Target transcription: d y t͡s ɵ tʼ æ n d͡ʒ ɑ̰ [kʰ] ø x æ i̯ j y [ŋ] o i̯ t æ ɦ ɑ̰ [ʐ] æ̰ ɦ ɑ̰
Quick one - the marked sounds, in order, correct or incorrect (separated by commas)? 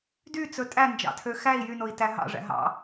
incorrect, incorrect, correct